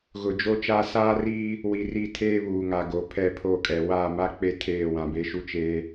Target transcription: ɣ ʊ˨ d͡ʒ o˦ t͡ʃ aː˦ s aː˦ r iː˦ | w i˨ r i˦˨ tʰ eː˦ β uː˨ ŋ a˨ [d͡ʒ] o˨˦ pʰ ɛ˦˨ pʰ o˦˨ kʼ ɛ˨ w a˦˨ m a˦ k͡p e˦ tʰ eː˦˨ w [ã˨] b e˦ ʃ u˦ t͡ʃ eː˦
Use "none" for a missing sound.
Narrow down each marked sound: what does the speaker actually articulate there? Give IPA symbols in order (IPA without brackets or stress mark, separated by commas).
ɡ, ã˨